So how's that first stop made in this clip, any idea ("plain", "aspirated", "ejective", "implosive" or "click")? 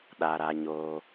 implosive